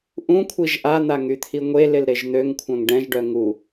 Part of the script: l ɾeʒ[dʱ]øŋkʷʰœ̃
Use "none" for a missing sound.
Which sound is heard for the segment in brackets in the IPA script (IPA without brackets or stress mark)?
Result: n̪